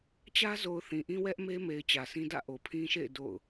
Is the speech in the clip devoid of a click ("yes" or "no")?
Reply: yes